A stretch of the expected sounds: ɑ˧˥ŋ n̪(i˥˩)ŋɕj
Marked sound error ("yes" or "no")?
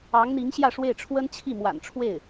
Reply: yes